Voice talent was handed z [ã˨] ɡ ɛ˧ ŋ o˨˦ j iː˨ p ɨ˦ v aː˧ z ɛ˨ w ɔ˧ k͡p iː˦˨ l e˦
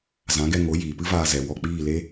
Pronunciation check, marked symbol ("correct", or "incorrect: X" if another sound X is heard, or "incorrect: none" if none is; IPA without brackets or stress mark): incorrect: ã˨˦